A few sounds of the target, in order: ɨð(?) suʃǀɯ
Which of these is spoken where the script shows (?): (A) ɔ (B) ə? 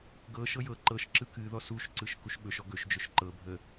A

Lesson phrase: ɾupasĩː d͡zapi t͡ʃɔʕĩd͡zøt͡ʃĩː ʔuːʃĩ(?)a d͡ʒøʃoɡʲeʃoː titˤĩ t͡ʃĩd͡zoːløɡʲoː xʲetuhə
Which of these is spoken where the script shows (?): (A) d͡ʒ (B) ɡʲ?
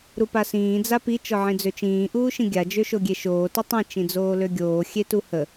B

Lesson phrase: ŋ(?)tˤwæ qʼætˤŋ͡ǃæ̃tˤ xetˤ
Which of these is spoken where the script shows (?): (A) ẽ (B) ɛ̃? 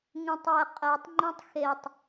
A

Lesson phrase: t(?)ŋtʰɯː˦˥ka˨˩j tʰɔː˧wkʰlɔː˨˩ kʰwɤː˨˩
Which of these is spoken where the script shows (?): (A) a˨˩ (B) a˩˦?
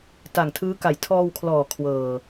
A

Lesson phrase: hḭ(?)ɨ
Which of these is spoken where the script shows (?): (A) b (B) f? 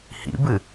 A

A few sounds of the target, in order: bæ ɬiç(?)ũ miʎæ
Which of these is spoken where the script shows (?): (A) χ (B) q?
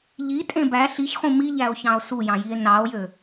A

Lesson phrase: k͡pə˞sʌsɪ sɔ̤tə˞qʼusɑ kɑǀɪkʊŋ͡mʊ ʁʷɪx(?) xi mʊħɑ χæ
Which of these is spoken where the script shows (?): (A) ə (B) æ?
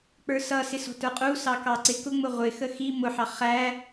A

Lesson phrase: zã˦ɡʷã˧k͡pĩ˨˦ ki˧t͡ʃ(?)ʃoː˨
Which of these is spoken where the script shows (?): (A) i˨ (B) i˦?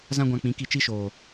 B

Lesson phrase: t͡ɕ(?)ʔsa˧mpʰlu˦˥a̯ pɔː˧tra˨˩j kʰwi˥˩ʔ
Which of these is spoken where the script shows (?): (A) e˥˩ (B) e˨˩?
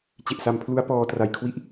B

